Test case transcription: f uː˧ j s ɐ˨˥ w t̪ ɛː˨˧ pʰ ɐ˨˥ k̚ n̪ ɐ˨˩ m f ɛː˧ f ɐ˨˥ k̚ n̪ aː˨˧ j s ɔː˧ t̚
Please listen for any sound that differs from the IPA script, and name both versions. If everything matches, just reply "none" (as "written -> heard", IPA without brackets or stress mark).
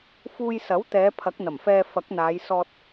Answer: none